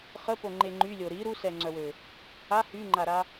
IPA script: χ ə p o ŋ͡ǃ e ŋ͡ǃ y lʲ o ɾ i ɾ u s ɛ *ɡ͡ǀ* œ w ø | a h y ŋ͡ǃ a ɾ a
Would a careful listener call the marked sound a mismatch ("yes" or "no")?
yes